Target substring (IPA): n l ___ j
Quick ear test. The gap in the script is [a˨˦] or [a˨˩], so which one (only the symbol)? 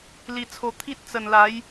a˨˦